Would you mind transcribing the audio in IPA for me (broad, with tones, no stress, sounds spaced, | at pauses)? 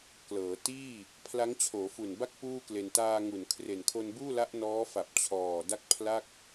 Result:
k l ɤː˩˦ t iː˥˩ | pʰ l a˦˥ ŋ t͡ɕʰ oː˩˦ f u˨˩ n b a˥˩ k̚ p uː˥˩ k l e˧ n t aː˧ ŋ u˨˩ n kʰ r e˨˩ n kʰ o˧ n b uː˥˩ l a˦˥ ʔ n ɔː˦˥ f a˨˩ p̚ t͡ɕʰ ɔː˨˩ d a˥˩ k̚ pʰ l a˥˩ k̚